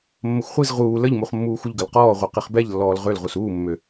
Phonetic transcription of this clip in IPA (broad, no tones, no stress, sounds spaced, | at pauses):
mː ə xʷ χʷ i z ʁ uː l ə ʎ m u χ mː uː xʷ ə ʎ ɡ ə l q ɔː ʁʷ e q i χ b ɛ ʎ lː ɔː l ʁ ø l ʁ u s uː mː ø